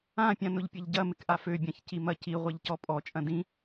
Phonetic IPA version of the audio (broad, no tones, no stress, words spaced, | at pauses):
ãpʲã nʊʎpʲɐʎɟɐmɪk ʔaføbʲãç cimɐ ci ʁʷɐʎcɔpʼɔt͡ʃʼɐ̃ dĩ